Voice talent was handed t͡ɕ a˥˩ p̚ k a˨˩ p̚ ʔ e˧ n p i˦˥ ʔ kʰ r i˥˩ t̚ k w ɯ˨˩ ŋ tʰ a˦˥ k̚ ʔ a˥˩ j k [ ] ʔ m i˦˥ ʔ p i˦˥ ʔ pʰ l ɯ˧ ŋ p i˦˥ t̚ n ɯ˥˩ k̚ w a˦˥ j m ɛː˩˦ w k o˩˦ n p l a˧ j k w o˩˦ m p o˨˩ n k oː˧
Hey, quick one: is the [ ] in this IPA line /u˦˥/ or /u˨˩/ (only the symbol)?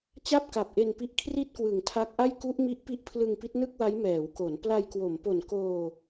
u˦˥